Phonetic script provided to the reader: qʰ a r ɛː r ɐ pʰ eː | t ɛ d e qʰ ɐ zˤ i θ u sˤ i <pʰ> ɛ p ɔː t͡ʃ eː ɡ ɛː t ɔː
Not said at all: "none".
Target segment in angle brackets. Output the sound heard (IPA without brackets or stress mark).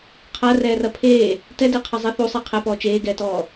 qʰ